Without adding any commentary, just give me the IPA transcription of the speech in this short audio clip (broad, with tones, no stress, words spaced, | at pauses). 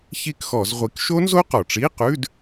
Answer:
çi˥˨kxɔ˧˩˧zʁʷi˨˦k ʃo˦˥nzo˦˥qɔ˩ʈ͡ʂi˧˥˧ qʉ˧˥˧d